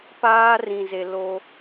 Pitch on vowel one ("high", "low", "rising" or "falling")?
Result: high